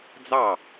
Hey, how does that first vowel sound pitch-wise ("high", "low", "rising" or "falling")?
falling